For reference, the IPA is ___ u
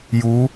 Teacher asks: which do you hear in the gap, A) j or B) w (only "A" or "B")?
A